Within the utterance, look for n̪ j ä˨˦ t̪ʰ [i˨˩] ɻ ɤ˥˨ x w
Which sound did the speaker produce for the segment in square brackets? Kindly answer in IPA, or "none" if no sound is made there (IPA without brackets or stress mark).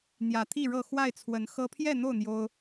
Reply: i˥˨